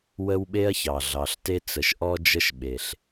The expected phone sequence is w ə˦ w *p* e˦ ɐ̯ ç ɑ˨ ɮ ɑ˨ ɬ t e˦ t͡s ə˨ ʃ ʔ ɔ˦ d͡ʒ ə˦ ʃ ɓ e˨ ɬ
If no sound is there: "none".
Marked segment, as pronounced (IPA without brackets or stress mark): ɓ